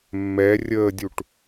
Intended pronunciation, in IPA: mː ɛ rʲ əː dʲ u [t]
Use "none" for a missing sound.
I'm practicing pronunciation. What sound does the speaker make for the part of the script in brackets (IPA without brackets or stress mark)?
ʈ